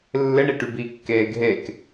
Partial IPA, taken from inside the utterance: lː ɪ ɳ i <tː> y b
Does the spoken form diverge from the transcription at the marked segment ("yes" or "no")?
yes